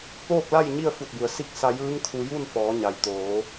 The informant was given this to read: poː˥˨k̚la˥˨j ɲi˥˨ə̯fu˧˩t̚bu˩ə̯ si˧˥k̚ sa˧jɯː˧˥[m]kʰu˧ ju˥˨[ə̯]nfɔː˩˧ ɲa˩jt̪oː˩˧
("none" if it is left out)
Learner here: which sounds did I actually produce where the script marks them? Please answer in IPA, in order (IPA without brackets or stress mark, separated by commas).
ŋ, none